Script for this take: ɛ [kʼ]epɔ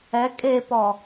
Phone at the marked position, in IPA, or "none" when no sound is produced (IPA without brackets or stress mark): kʼ